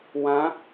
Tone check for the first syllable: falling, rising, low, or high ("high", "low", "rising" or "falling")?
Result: rising